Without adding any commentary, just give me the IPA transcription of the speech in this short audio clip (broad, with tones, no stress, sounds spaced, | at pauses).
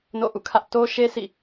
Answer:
n o̰˦˨ ʔ ṵ˦˨ kʰ ä˦ ʔ t o˦ ʃ e˦ sʰ ḭ˦˨